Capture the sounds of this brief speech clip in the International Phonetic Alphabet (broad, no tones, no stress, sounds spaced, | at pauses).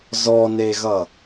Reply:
z ɔ n e ɣ ʌ